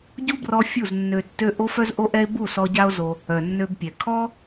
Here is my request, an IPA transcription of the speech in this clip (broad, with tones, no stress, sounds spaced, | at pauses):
ɟ u˦ b r ɔ˧ fʲ u˦˨ z nː ø˧ tː ø˦ ʔ o˦ f œ˦ z ʔ o˦ ʔ ɛ˦ e̯ b u˦˨ s ɔ˧ ɟ a˦ o̯ z o˧ | œ˨ nː ø˧ b pʲ ɛ˨ kʰ ɔ˦